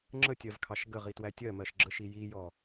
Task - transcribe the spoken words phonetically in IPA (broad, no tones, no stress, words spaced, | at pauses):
ŋ͡ǁətʲɜvkʰɑʃ ɡəʁitwæ tʲɜmɜʃɡ͡ǁəʃi jijɔ